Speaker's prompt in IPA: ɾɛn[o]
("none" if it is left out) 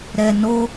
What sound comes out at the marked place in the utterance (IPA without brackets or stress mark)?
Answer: o